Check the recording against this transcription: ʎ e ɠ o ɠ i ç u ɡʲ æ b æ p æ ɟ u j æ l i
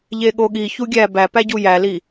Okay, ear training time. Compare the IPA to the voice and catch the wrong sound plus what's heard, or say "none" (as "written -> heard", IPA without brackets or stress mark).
none